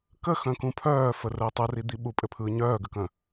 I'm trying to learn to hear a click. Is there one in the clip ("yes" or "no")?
no